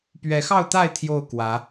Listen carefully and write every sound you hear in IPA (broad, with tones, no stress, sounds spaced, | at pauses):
p ɥ ɛ˨˦ x ɑ˥˨ ʊ̯ t̪ a˥˨ ɪ̯ t̪ʰ j o˥˨ ʊ̯ k w ä˨˦